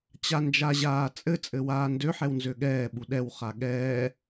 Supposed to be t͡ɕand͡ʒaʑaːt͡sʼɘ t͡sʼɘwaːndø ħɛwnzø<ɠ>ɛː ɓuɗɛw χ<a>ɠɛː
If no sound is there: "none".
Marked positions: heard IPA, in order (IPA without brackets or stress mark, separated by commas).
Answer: ɠ, a